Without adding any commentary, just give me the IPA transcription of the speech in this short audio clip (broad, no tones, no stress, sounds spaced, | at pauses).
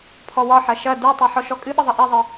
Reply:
pʰ ɔ w ɒ ħ ɐ ʃ ɐ d u tˤ i ħ ɔ ʃ ɔ kʼ ɨ ɓ ə ðˤ ɐ ʔ i ðˤ ɨ